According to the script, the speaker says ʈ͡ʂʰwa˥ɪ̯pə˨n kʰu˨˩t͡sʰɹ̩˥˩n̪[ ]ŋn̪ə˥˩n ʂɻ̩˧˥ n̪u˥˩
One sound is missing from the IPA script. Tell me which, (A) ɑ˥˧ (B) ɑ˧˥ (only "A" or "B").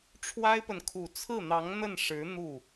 B